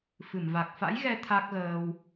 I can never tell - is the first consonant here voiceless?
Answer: yes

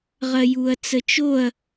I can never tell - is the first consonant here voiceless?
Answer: no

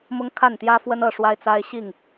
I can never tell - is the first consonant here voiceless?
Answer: no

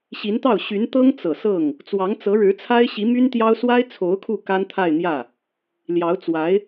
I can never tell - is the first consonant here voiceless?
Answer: yes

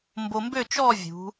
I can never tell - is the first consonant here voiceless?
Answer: no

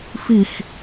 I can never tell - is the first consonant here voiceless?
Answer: yes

